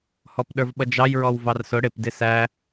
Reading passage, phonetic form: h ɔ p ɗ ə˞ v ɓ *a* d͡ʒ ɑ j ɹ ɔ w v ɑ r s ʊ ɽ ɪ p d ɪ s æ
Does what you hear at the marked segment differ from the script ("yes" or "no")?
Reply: yes